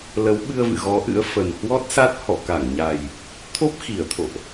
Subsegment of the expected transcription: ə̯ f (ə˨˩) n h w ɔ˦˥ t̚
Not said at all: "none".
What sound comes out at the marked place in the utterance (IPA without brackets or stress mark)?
ə˨˩